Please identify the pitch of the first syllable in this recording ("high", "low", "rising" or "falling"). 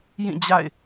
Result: falling